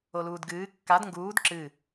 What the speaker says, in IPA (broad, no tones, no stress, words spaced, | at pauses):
oluːdɡɨː kːad ŋɡuːd ǁɨ